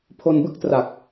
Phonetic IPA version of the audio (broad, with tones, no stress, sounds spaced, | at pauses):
pʰ o˧ n b ɯ˦˥ k̚ t r a˨˩ k̚